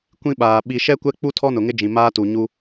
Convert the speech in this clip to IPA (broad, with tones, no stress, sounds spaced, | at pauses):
kʷ ĩ˦ ɓ aː˨ ɓ i˨ ʃ ɛ˦ kʷ ɛ˦ k͡p u˦ tʰ ɔ˦ n ʊ˨ ŋ ɪ˦ d͡ʒ ĩ˨ m aː˦ t u˨ ɲ u˦